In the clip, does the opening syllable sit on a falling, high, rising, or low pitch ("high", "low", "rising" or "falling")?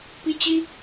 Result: high